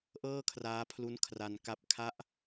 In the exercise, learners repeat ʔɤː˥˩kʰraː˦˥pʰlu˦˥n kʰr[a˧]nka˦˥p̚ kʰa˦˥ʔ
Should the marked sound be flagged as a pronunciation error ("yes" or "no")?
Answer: no